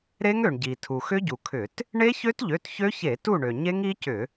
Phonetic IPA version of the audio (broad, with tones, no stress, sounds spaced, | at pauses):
ɾ e˦˥ ŋ ø˩ ɳ ɟ i˩ tʰ u˩ x ʏ˦˥ ɟ u˩ kʰ ʏ˧˩˧ t | ɳ e˦˥ ç ø˦˥ t ʎ ø˩˧˩ t ç ø˦˥ ç e˧˩˧ t u˦˨ ɳ ø˩ ɲ e˦˥ ŋ i˦˥ c ʏ˧˩˧